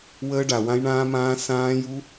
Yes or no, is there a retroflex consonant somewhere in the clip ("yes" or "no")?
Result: yes